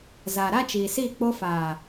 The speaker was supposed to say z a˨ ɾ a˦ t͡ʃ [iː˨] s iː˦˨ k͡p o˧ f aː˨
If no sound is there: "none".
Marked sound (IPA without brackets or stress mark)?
iː˨